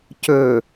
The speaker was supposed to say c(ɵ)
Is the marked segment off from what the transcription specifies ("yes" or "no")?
no